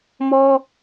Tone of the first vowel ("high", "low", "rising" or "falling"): high